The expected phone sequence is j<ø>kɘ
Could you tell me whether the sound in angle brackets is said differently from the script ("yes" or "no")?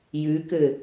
yes